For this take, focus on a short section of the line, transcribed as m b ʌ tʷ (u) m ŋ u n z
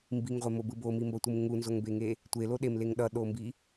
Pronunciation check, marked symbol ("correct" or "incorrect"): incorrect